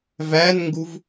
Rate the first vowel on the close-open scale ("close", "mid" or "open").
open